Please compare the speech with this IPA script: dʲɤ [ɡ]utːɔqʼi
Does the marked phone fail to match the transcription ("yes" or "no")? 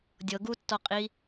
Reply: no